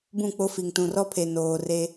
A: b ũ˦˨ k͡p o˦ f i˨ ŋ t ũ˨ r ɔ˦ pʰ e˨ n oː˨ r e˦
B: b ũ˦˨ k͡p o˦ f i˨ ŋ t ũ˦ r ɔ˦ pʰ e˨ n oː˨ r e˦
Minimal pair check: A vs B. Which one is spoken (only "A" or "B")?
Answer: A